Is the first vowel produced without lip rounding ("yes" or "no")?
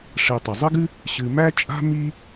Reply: yes